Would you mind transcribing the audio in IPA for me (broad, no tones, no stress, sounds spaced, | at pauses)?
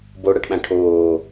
b o ɽ a ʈ ɓ ã ʈʰ oː